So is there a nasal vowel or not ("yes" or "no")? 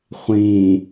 yes